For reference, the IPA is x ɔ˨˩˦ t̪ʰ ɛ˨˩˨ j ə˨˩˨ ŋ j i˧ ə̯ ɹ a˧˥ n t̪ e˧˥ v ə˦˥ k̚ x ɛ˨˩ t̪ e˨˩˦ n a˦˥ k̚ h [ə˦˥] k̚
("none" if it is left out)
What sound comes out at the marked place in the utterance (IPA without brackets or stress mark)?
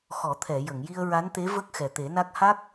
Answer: a˦˥